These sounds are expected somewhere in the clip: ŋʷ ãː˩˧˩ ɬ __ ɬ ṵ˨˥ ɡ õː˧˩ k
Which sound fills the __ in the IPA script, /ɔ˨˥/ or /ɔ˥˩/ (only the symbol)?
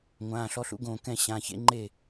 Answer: ɔ˨˥